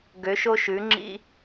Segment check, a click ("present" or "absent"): present